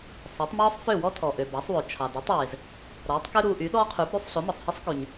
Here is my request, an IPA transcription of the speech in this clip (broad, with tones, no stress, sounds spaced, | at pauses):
sˤ o˩˥ tˤ m ɔː˥ sˤ f ø˥˩ w ɔ˥ tʰ ɔ˩ ʔ ø˩ b ɑ˩˥ sˤ w ɵ˩ t͡ʃʰ ɑ˩ d ø˩˥ tˤ w e˩ z | ɾ ɔː˩˥ tˤ k ø˥ ɾ uː˧ ʔ y˩˥ ɗ ɔː˥ qʰ ʉ˩˥ b ɾ ʉ˧ sˤ ɬ o˩˥ m ɔ˩ sˤ h i˥ sˤ k y˩ ɲ